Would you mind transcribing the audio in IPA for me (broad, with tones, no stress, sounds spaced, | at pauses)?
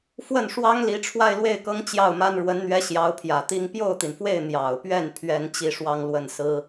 f w ə˥˩ n ʂ w ɑ˥ ŋ l i˧˥ ʈ͡ʂʰ w a˥˧ ɪ̯ l w e˥˩ ɪ̯ k ɤ˥ ŋ t͡ɕ j ɑ˥˩ ʊ̯ m a˥ n ɻ w ə˧˥ n n̪ ɥ ɛ˧˥ ɕ j ɑ˧˥ ʊ̯ pʰ j ä˨˩ t̪ i˥ ŋ p j o˥˩ ʊ̯ t̪ i˩ n f w e˥˩ ɪ̯ n̪ j ɑ˨˩ ʊ̯ p ɥ ɛ˥˩ n pʰ ɥ ɛ˥ n t͡ɕ i˥˧ ʂ w ɑ˥˧ ŋ l w ə˥˩ n s ɹ̩˥